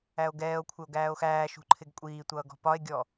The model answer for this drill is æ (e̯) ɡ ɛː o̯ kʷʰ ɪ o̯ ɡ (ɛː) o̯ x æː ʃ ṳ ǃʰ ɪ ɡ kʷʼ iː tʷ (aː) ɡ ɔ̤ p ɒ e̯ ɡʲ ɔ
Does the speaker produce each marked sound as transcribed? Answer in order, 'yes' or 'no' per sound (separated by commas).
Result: no, no, no